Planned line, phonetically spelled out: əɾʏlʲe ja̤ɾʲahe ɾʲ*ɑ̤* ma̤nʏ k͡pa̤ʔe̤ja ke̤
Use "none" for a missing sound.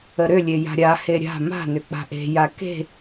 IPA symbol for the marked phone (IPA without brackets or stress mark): a̤